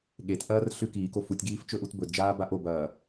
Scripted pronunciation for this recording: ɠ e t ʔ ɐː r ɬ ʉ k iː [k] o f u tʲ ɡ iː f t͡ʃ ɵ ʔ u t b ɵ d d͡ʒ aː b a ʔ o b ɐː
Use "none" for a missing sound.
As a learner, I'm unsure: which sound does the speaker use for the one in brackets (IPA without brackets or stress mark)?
k